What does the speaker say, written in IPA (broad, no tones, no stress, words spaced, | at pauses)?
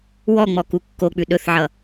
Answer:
wɔŋ͡mɔ kukːok͡pʉ ɗɵθʕʌ